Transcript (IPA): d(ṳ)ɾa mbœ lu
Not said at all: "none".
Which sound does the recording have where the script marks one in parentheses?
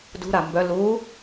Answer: ṳ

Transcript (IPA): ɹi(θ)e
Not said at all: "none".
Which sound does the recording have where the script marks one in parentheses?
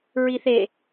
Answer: θ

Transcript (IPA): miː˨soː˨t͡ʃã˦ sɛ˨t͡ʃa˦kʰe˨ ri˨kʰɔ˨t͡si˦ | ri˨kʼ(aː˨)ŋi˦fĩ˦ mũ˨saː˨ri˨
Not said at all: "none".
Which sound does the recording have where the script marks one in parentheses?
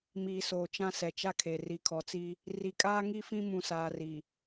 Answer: aː˦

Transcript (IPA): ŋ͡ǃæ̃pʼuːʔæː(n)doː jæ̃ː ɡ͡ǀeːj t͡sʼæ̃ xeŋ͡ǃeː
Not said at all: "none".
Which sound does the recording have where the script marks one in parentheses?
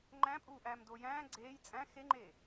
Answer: m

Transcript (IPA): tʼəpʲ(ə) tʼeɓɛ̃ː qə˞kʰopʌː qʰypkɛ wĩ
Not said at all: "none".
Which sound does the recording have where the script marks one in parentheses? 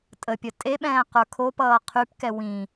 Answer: ə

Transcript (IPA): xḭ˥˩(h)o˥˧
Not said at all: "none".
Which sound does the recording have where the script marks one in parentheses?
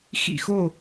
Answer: x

